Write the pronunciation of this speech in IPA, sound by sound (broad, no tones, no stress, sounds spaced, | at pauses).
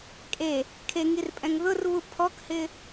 kʼ e | kʰ e ŋ i r pʼ ɛ̃ ŋ ð ʊ r β u pʰ ɔ k h ɪ